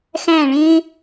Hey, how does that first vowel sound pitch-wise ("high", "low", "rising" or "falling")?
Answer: falling